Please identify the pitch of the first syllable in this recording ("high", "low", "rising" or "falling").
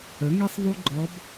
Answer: rising